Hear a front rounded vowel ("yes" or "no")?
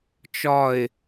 no